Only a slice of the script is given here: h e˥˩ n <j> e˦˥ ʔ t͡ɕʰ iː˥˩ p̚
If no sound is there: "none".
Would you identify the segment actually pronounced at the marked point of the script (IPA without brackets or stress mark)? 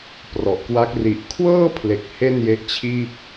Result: j